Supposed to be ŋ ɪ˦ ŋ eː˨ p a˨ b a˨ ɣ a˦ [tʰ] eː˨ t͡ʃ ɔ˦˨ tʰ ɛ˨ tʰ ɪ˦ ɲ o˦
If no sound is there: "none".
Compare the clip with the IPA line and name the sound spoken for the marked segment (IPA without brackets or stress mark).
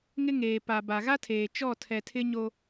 tʰ